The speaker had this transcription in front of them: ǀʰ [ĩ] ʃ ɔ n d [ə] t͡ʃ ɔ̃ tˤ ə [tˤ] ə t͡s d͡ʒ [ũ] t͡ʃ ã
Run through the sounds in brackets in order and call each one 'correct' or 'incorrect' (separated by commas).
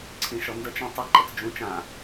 correct, correct, incorrect, correct